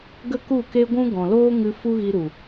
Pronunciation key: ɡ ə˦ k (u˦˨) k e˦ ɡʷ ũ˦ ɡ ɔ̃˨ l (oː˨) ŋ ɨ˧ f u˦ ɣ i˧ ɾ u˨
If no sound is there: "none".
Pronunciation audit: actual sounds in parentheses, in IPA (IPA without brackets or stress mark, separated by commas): u˦˨, oː˦